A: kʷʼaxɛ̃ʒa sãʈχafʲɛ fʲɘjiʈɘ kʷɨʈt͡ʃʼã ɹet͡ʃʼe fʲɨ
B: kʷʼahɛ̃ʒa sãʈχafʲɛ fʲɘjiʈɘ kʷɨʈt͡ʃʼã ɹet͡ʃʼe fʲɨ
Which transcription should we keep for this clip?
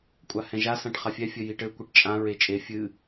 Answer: B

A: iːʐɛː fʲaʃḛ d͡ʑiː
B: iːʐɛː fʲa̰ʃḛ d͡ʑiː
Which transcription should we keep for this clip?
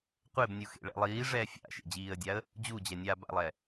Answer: B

